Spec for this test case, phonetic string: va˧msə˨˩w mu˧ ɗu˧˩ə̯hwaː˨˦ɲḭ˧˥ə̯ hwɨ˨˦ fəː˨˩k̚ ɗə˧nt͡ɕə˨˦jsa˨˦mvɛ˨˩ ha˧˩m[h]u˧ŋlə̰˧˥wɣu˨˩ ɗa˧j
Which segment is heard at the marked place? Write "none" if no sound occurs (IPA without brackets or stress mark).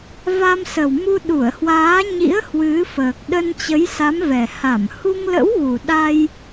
h